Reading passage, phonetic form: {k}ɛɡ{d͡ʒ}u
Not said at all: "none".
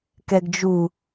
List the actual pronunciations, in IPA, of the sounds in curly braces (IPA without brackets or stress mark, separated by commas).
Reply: k, d͡ʒ